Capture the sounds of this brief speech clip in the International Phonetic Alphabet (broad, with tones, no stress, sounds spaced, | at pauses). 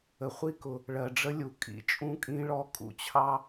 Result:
ə˨ χʷ i˥ k ʊ˨ | ɭ ɜ˨ ɖ͡ʐ ə˦ lʲ u˨ kʼ ḭ˦ t͡ʃʼ ũ˦ kʼ ĩ˦ ɭ ɔ˦ kʼ ṵ˦ t͡ɕʰ ɑ˥